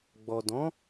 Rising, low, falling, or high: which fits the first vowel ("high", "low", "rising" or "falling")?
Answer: low